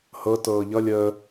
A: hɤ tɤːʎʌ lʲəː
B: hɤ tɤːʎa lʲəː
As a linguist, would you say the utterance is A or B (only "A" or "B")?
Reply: A